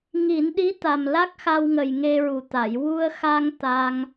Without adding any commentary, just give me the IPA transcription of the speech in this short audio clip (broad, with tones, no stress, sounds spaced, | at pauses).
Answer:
ŋ i˨˩˦ n ɗ i˧˥ t̪ a˨˩ m l a˦˥ k̚ x a˧ w ŋ ə˨˩ j ŋ e˧ ɹ u˨˩ t̪ a˨˩˨ j w u˧ ə̯ x a˧ ŋ t̪ a˧ ŋ